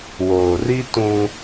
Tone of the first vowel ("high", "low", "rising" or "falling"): low